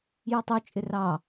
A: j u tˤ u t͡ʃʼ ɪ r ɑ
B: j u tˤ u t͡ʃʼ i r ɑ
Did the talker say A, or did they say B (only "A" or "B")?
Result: A